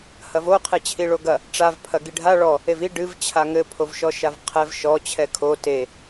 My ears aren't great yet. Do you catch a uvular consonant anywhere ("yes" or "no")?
yes